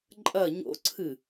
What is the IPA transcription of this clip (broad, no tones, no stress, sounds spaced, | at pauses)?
ǃʼ ɐ ɲ o̰ ǀʰ ɨ